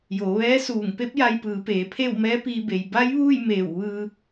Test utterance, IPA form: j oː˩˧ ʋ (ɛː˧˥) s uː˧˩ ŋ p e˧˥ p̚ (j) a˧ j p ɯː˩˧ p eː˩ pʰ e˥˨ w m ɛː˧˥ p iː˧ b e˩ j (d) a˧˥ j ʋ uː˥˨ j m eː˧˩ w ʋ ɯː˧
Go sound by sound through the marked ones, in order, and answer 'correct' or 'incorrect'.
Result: correct, correct, incorrect: b

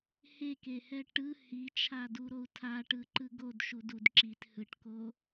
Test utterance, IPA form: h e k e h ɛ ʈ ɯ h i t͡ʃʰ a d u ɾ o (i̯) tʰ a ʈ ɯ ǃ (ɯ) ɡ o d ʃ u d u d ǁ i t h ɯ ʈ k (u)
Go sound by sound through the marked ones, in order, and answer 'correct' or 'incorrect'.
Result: incorrect: u̯, correct, incorrect: o

